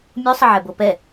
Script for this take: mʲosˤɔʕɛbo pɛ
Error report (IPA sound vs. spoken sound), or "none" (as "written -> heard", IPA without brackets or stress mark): ɔ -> ə